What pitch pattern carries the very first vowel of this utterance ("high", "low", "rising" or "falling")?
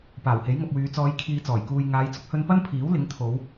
low